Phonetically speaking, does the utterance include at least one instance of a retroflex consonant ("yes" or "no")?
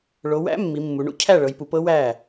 yes